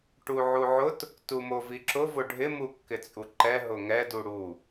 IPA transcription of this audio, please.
ʈ u ʕ u ʕ ʊ t | t u m o v i ǁ ʊ v ʊ ɖʱ ɪ m u kː ɪ t͡sʼ u ǃ ɛ ɦ ʊ ŋ ɛ d u ɽ u

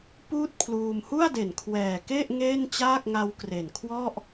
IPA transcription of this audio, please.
p uː˥˩ t̚ pʰ l uː˧ m h u˥˩ a̯ d e˨˩ n kʰ w ɛː˨˩ k e˥˩ ʔ ŋ eː˥˩ n t͡ɕ aː˥˩ k̚ ŋ a˦˥ w k r e˨˩ n kʰ w ɔ˥˩ ʔ

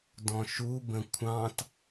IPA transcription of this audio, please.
d ɔ̃ ʃ u b ə̃ kʷʰ ɑ̃ t

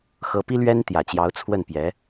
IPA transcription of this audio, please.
x ɤ˧˥ p i˥ l ɥ ɛ˥ n t̪ j ä˨˩ t͡ɕ j ɑ˧˥ ʊ̯ t͡sʰ w ə˥˩ n p j ɛ˧˥

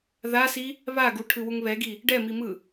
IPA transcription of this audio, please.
ð a s i | β a ɡ u ʈʰ ɯ w u ŋ β ɛ ɡ i | ɖ ɛ m i m ɯ

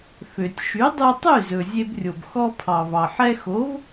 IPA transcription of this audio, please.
f ø˩ tʲ ʃ y˩˥ dˤ y˧ tˤ y˥˩ z ɵ˩ zʲ e˧ b rʲ o˩ b x ɔ˧ pʰ ɑ˩ v ɑ˩ ħ ɛ˧ x o˩˥ v

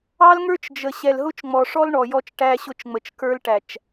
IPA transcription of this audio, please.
ɑ˦ l ŋ ə˞˦ t͡ʃ d͡ʒ ə˨ ɕ ɛ˨ l ɦ ʊ˦ t͡ʃ ŋ͡m ɔ˨ ʂ ɔ˦ l ɳ ɔ˨ j ɔ˦ t͡ʃ ʈ æ˦ ɕ ʊ˦˨ t͡ʃ ŋ͡m ə˨ t͡ʃ k ə˞˦ l ʈ æ˨ t͡ʃ

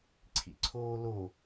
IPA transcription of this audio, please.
ǀʰ ḭ ǀʰ oː l o

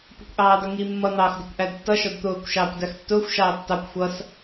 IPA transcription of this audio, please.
p ʊ kʷ ʔ ɑː d ʌ ŋ i mː ʌ n̪ ɑː x d ʊ kʷ ʔ æ d tː ʌ ʃ ɔ d t̪ ʊː kʷ ʃ ɑː kʷ d æ x tː ʊː xʷ ʃ ɑː tː ɑ kʷ xʷ ʌ s

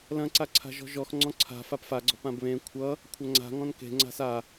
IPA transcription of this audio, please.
l ɐ̃ ǀ a ǀʰ a̤ ʒ ɔ̤ ʒ ɔ x ŋ͡ǀ ɔ̃ ǀʰ a̤ f a p f a ɡ͡ǀ ɔ̤ p ã b β ẽ kʷʰ ʌ | kʷʰ ɐ ŋ͡ǀ a̤ ŋ ɔ̃ n k e̤ ŋ͡ǀ a̤ s a

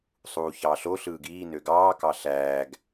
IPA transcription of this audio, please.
sˤ uː ç ɑː ɬ o ɬ ɯː ɡ iː n ø ɡ ɑː k ɑ ɬ æː ɡ

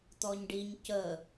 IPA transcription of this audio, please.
t̪ ɔ ɲ ɖ i ɲ c ə

